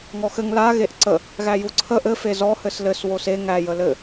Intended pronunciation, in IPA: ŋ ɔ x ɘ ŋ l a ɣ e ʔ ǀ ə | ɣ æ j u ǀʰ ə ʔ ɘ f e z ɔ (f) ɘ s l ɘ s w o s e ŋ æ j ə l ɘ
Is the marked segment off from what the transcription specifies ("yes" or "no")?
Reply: yes